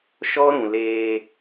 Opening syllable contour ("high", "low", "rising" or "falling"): high